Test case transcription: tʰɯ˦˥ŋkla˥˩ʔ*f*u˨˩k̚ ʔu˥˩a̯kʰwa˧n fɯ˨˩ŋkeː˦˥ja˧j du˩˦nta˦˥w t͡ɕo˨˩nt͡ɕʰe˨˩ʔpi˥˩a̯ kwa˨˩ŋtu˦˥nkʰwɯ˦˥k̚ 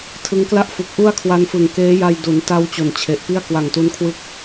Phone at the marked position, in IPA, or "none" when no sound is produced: f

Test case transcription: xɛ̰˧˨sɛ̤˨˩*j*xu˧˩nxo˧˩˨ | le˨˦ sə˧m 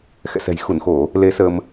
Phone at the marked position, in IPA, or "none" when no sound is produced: j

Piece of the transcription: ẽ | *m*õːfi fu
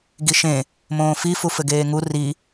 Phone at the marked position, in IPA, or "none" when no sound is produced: m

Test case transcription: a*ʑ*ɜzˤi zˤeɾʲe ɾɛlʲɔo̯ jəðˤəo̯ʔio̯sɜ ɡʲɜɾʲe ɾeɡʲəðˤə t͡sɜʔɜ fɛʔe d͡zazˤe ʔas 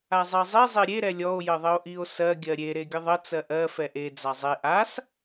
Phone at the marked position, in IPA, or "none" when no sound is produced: zˤ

